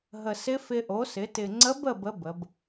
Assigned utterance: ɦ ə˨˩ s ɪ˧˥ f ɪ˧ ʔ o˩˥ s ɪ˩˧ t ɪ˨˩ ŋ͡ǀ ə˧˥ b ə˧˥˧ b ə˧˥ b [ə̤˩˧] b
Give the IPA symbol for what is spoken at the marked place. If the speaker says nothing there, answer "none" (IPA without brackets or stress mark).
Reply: ə˩˧